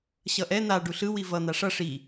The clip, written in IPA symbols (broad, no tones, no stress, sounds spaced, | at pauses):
ɕ ʌ ʔ ɛ n̪ a ɖ u ɬ ɯ w i v ʌ n̪ a ʂ ʌ ʂ i